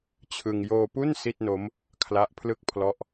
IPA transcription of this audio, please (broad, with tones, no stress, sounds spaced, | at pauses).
t͡ɕʰ ɯ˧ ŋ j oː˧ p u˥˩ n s i˥˩ t̚ n o˦˥ m | kʰ l a˦˥ ʔ pʰ l ɯ˥˩ k̚ pʰ l ɔ˦˥ ʔ